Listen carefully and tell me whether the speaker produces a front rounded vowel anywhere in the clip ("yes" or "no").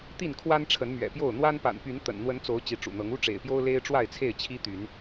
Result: yes